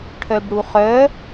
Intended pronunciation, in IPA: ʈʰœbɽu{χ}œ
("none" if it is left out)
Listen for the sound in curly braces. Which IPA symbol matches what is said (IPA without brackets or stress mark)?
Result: χ